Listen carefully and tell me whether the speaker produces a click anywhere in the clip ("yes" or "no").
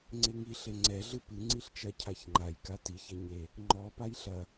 yes